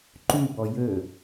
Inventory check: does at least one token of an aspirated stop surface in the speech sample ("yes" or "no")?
no